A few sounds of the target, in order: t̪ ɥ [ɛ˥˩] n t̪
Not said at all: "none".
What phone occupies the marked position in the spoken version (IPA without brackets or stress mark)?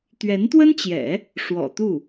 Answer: ɛ˧˥